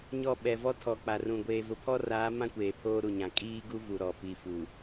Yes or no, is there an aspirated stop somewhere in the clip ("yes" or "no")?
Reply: yes